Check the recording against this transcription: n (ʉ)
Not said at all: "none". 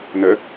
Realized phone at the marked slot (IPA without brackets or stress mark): ə